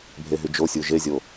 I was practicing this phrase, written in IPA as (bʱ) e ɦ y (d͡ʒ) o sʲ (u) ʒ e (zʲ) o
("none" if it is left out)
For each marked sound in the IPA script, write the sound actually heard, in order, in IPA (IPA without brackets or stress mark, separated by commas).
bʱ, d͡ʒ, u, zʲ